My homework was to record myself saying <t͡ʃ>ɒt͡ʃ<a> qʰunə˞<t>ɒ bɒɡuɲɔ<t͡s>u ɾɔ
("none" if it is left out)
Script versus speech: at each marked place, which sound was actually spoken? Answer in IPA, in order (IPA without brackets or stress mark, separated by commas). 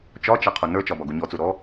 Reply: t͡ʃ, a, t͡ʃ, t͡s